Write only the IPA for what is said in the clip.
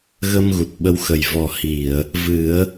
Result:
ɣ ə˧ m ɣ u˨˩ t̚ ɓ ə˧ w x ə˨˩ j v ɔ˨˩ h i˨˩˨ ə̯ | v ɨ˨˩˦ ə̯

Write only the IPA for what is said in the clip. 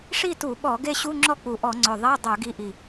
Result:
ʂ i˥˨ t u˧˩˧ ɓ ɔ˧˩˧ ɡ e˥˨ ɕ u˧˥˧ ŋ͡ǁ ɔ˥˨ k͡p u˨˩ ʔ ɔ˧˩˧ ŋ͡ǀ œ˨˩ ðˤ e˧˥˧ dˤ œ˧˩˧ ɡ i˨˥ ʔ i˨˩

